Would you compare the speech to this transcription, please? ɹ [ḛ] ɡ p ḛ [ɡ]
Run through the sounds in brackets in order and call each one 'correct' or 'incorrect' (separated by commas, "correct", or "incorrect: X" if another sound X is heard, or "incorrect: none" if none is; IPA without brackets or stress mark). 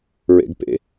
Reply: correct, incorrect: none